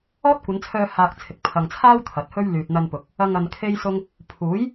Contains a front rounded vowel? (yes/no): yes